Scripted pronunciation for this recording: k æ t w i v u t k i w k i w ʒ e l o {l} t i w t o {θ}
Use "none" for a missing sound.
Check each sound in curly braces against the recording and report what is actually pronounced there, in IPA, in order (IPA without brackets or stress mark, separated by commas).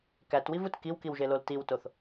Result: l, θ